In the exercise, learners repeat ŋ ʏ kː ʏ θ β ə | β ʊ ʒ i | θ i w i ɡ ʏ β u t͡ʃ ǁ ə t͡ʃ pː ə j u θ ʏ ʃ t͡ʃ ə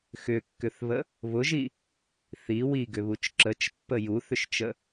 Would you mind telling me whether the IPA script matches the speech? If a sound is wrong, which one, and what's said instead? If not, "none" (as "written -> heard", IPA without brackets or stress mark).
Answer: ŋ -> x